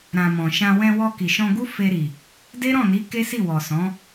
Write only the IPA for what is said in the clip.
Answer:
ɾ ã˨ m ɔ̃˨ ʃ ã˧ w ɛ̃˧ w ɔ˧ k i˨ ʃ ɔ̃˧ ɡ u˦ f e˧ ɾ i˨ | d e˦ ɾ ɔ̃˦˨ n i˨˦ k e˦ s i˦˨ w ɔ˨ s ɔ̃˨˦

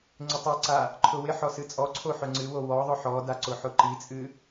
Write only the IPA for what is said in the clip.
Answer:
ŋ͡ǀ ɪ tˤ ɛ ǀ a | ǃʰ ʊ w ɪ ħ ɔ s ɨ t͡sʼ ɔ ǀʰ o ħ ʊ ŋ͡ǀ ɨ w o w ɔ ðˤ ʊ ħ ɔ d a ǀ ʊ ħ ʊ ǃ i t͡sʼ ɨ

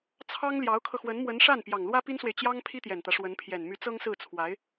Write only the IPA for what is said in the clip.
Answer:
t͡sʰ ɑ˥ ŋ l j ɑ˧˥ ʊ̯ kʰ ɤ˧ x w ə˧˥ n m w ə˧˥ n ʂ a˥˩ n p j ɑ˨˩ ŋ l w ä˥ p i˥ n s w e˨ ɪ̯ t͡ɕ j ɑ˥ ŋ pʰ i˥ t̪ j ɛ˨˩ n t̪ ä˦ ʂ w ə˧˥ n pʰ j ɛ˨˩ n m y˧˥ t͡s ɤ˥ ŋ s ɹ̩˥˩ t͡sʰ w a˧˥ ɪ̯

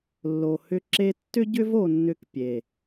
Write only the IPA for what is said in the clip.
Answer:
lː o˨ h ʏ˧ ǁ e˧ tː ʏ˦ ɟ ʏ˦ v o˧ nː ʏ˧ k pʲ e˨

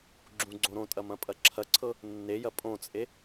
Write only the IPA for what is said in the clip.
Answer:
ɡ͡ǁ ũ ɡ͡ǀ õ ɾ õ tʼ ɐ m ɐ̃ pʼ ɐ ǁʰ ɐ ǀʰ ɤ | nː e j ɐ pʼ õ t͡sʼ e

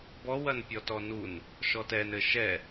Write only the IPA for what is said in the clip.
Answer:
b ɔ w ɐ n pʲ ɔ t ɔ n u n | ʃ ɔ t ɛ n ɘ ʃ ɛ

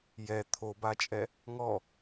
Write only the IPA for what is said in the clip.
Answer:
j ɛ t̪ʰ o b a t͡ʃʼ ɛ | ŋ ɔ

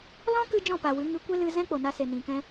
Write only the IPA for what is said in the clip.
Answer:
l ɔ̃˦ k ɨ˧ d͡ʒ ɔ̃˦˨ p a˨ w ɨ˨˦ ŋ ɨ˧ kʷ e˦ l ɨ˧ z ɛ̃˦ k͡p o˨ n a˧ s e˨ n ĩ˨ k ɛ̃˧

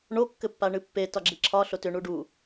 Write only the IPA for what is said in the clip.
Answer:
ɳ o kː ɘ pː a ɳ ɨ pː e t ɒ ɡ͡ǁ i ǁʰ ɒ ɬ o t ʏ ɳ u ɖ u

